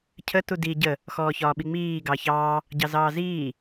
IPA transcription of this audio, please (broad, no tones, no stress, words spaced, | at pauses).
cʰə tudi ɟə | xɔːçɒːɓiŋ͡miː ɡɑçɑː | ɟɑzɑːziː